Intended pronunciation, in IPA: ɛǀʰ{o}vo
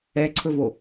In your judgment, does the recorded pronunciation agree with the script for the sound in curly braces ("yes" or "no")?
no